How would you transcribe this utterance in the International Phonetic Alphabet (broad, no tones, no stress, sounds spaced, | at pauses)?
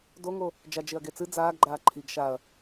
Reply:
d o ŋ o | d͡ʒ a d͡ʒ e ɐ̯ ɡ e t͡s ɨ d͡z aː ɡ ɡ͡ǃ aː ǃʰ i ɡ ʃ a ɐ̯